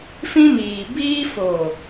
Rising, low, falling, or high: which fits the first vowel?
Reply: high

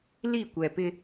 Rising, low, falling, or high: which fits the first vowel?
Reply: falling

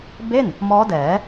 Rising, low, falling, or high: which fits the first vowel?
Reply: falling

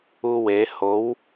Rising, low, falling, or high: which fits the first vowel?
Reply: high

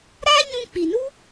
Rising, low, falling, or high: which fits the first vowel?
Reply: high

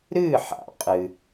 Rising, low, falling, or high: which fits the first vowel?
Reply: falling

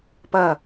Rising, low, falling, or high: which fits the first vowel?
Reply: low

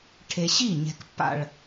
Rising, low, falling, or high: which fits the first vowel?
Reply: low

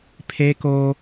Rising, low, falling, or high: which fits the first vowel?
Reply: high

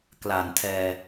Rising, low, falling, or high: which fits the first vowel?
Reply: low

